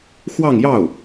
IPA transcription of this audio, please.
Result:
x w ɑ˥˧ ŋ j ɑ˥˩ ʊ̯

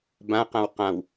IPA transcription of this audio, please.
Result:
b ã q ã w q ã w

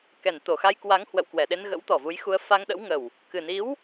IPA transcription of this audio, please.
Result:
k ɛ˧˩ n t̪ o˧˩ x a˧ j k w a˨˦ ŋ h w ə̰˧˨ w k w ɛ˧˩ ɗ e˧ n ɣ ə̰˧˥ w t̪ ɔ˨˩ v u˨˦ j x u˧ ə̯ f a˧ ŋ ɗ ə̰˧˥ w ŋ ə˨˩ w | k ɨ˨˩ n i˨˦ w

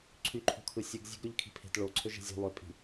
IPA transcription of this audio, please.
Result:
ǀʰ y ǃʰ o̤ kʰ ɯ sʲ ɯ ɡ zʲ e̤ ɡ ɾ ø ʎ kʰ i̤ pʰ e̤ t ɭ o ǀʰ ø ʒ e̤ zʲ o̤ lˠ ø pʼ i̤

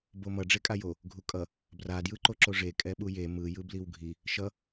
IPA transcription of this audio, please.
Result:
b o m ʌ ɖ͡ʐ e kʼ a j o | ɡʱ u kʼ ʌ | b r a d j ɯ ǃ o ǁ o ʐ e kʼ ɛ ɓ u j e m ɯ j ɯ b l i w ɡʱ i | ʃ ʌ

